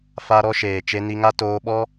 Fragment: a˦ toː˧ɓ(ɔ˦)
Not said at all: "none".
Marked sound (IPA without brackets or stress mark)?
ɔ˦